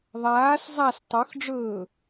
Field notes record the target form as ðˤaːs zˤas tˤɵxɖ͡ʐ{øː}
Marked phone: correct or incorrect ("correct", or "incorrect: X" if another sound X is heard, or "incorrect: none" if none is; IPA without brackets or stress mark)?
incorrect: ɵː